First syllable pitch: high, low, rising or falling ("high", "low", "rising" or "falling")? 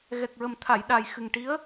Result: low